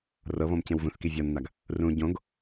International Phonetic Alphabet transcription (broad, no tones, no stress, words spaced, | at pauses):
rɤβɔ̃m cẽwvũθki vʲɔnːaɡ | rũ ɟõɡ